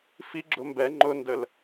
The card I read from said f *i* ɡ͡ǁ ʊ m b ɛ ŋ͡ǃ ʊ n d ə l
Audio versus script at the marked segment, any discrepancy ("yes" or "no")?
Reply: no